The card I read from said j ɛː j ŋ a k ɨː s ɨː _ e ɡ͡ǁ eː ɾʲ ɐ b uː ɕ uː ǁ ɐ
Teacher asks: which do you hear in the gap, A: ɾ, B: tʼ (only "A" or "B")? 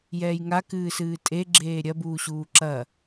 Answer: B